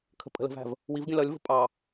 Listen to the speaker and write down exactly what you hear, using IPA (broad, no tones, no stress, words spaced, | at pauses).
kʰə̤pʼə̤lə̤væ̤v | wivɡʲə̃ lʌlʲvə̤ pʼɑ